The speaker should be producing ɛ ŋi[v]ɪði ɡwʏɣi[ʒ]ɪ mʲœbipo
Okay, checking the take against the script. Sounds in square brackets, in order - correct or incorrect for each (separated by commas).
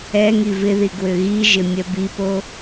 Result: correct, correct